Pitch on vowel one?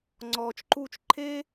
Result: low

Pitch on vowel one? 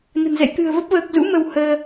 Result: low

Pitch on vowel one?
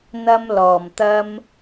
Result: high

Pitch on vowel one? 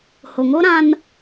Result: low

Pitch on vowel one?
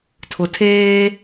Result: low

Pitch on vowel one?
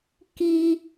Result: high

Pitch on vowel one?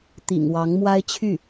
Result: low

